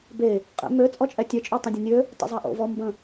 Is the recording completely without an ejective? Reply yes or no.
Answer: no